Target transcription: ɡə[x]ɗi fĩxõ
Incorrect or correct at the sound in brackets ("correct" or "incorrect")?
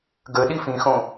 incorrect